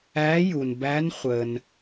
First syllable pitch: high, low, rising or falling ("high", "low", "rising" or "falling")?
rising